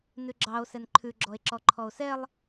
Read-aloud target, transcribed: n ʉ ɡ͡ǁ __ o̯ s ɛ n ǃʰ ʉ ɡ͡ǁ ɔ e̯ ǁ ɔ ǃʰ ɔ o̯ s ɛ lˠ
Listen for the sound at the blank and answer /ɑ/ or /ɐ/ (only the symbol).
ɑ